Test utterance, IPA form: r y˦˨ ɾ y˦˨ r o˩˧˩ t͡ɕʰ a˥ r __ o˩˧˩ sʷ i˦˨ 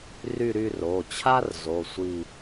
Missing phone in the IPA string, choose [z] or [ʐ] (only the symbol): z